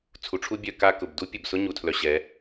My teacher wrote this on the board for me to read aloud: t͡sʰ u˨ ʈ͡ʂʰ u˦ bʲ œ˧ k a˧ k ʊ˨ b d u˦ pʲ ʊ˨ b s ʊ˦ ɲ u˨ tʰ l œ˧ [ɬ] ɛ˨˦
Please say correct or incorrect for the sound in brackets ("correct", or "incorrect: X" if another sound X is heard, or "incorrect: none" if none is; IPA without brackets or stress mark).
incorrect: ɕ